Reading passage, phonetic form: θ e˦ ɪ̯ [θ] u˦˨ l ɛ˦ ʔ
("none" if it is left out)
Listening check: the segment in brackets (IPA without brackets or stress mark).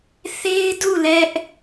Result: d